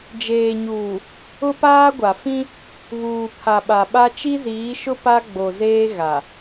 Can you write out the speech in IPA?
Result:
d͡ʒeː˨ɲuː˨ | ʊ˦paː˦ɡʷa˨ fĩ˦ | βuː˨pʰa˨ɓa˨ɓa˦ t͡ʃi˦ziː˨˦ʃʊ˦ pa˦ɡ͡bo˨zeː˦ ɣa˨

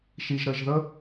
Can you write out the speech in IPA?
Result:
ʃi˩ʒɾə˩ʒðə˥

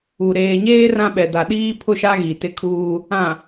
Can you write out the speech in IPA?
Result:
u˨ ɾeː˨ɲeː˦ rã˦ɓɛ˨ da˨ɗiː˦pʰʊ˦˨ʃa˦ ɣi˨tɪ˦kʰuː˦ | ã˨

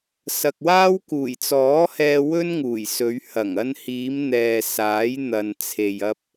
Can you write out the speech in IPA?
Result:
sɐ˨k̚waː˥w kuː˨˩jt͡sɔː˨˥hɛː˧ wɵ˥nŋuː˨˩jsɵ˨˧ɥ hɐ˨˩ŋɐ˧nhiː˨˧mn̪ɛː˨ saː˨˥jn̪ɐ˨n t͡sʰe˨jɐ˧p̚

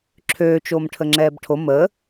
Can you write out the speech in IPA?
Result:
ǁʰøːt͡ʃoːm ʈʰəŋ͡ǁɛːbʈʰo məː

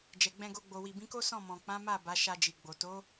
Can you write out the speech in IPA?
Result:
d͡ʒɛ˨ɡ͡bɛ̃˧ɡo˧ ɡ͡bo˨wi˨bĩ˨˦ko˦ sɔ̃˦˨mɔ̃˨k͡pã˨˦ma˦˨ ba˨˦ʃa˧d͡ʒi˨ɡ͡bo˨ to˨˦

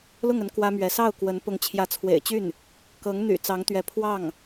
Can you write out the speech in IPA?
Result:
lʊ˥˩ŋə˧˥n kwä˥mɥɛ˧˥ sɑ˥˩ʊ̯kwə˧˥n pʊ˧˥ŋt͡ɕʰjä˧˥t͡sʰwḛ˨˩ɪ̯t͡ɕy˥˩n | kɤ˧˥ŋ n̪y̰˨˩ t͡sɑ˧˥ŋt̪ɥɛ˧˥ pʰwɑ˥˩ŋ

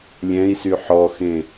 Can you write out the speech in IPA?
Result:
lʲɛ̃i̯sy ħɔxẽ

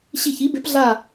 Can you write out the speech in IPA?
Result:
ɕi˧˩çi˨˦be˨˦p ɮa˧˩

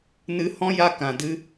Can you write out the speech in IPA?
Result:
nɨ˧hɔ̃˦ ja˦ kã˨dɨ˦

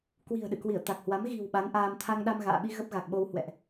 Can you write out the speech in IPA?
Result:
kwi̤˨˩ə̯ɗɨ̰˧˨kwi˧˩ə̯ t̪a˨˩k̚hwa˨˦m ɣi̤˨˩w ɓa˨˦nʔaː˧m t̪ʰa˧ŋɗa˧mɣa̰ː˧˨ɓi˧ ɣə˦˥p̚ɣa˨˩k̚ɓo˧w hwɛ̰˧˨ʔ

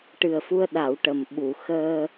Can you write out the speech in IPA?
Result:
ʈɨ˨˩ə̯fu˧ə̯ɗa˨˩˨w ʈə˨˩mɓu˨˩˨ xəː˧

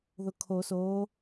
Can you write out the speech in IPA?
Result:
ðʊkʰo soː

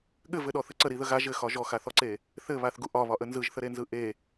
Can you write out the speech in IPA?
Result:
ɠɘvɘɗɔθɘ ǀəɾiðə ɣa ʒɘxɒ ʒɔxaθɔǀe | θɘβaθɡu ʔɒβɒʔə nzɯʒθəɾenzɯ ʔe

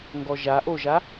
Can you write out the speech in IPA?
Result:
ŋɡɔʒaʔoʒa

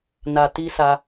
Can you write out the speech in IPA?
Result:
na˨ ti˧ sa˧

